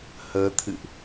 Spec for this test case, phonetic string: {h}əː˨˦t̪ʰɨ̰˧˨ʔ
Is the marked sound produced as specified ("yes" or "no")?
yes